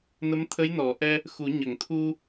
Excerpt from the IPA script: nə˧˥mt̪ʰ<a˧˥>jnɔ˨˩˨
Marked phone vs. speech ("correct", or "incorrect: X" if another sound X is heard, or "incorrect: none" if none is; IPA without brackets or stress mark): incorrect: ə˧˥